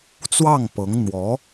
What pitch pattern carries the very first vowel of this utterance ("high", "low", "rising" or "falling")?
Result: falling